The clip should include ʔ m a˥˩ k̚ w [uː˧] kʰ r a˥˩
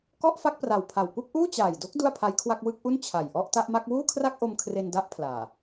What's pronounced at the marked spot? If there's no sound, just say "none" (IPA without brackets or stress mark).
uː˥˩